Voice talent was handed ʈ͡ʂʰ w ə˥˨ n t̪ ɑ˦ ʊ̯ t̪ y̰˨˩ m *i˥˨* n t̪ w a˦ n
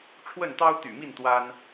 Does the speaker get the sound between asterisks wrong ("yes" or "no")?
no